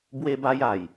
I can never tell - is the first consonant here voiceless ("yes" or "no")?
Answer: no